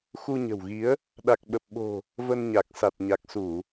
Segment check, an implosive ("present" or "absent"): present